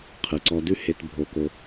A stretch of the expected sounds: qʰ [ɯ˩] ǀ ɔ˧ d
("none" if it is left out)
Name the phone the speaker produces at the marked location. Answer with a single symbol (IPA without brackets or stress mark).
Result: ɯ˩